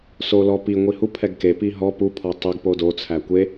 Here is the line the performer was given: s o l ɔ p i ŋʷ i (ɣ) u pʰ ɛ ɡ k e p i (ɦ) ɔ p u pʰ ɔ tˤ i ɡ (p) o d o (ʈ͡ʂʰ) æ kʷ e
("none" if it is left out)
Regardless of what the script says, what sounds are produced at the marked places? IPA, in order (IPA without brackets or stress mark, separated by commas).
h, ɦ, p, t͡sʰ